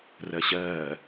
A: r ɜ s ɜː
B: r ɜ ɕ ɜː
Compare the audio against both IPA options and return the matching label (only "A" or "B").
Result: B